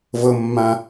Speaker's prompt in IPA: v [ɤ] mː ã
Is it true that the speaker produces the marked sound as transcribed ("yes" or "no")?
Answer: yes